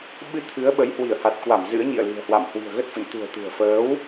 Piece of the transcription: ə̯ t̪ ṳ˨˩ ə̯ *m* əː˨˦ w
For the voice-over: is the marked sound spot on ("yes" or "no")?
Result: no